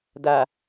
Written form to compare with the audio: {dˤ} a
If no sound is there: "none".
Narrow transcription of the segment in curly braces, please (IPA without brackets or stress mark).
d